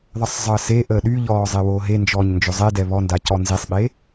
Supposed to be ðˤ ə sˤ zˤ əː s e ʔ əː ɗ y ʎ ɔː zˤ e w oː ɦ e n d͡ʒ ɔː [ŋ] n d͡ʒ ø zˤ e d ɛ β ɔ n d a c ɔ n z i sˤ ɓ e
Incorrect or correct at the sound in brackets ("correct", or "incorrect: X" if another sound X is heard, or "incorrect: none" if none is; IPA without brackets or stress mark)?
incorrect: ɲ